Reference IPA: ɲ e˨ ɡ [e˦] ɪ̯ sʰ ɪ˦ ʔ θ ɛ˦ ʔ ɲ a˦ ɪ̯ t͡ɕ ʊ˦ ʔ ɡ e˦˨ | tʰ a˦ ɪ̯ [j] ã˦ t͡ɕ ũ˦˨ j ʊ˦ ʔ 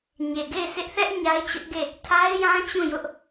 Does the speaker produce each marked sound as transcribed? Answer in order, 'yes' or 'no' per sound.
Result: no, yes

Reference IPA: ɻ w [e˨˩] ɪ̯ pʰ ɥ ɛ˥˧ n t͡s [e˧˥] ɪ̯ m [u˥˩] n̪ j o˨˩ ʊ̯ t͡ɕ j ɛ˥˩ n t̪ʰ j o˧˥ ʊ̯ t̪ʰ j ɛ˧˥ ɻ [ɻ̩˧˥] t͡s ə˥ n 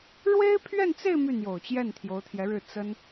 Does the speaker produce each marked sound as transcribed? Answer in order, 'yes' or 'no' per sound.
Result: no, no, no, no

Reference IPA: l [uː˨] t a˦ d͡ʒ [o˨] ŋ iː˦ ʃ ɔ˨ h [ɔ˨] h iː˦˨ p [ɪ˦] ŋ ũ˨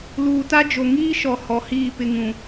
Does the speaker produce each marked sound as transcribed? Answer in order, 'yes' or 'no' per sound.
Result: yes, yes, yes, yes

